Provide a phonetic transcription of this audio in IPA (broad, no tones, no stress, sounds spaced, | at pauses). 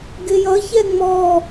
ɡ ɪ j ʌ ç ɛ ŋ͡m ɔ